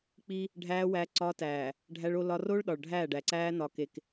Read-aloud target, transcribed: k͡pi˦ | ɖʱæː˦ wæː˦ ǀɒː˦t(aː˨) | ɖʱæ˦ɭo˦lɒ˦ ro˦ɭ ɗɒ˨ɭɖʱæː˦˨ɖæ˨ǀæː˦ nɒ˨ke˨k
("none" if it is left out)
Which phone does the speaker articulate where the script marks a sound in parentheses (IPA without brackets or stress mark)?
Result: æː˨